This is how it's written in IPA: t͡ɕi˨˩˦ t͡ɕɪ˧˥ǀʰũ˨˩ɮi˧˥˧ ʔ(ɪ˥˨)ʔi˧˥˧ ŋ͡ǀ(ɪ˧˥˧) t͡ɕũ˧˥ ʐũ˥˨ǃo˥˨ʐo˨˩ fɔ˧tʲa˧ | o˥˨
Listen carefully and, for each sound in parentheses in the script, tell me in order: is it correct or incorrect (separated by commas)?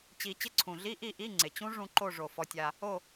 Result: incorrect, incorrect